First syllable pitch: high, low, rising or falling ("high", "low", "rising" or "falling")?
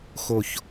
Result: falling